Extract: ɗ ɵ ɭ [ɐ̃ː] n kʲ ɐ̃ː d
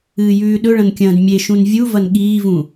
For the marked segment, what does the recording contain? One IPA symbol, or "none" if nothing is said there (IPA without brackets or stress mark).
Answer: ɐ̃